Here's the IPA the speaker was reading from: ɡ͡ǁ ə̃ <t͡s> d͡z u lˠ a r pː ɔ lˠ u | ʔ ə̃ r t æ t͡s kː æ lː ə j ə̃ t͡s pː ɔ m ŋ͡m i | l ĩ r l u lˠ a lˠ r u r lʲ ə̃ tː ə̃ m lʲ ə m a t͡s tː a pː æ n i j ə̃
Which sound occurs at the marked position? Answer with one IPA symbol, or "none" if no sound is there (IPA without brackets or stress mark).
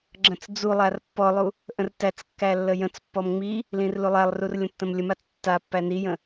t͡s